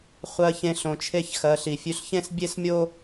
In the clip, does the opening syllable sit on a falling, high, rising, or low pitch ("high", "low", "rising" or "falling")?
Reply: low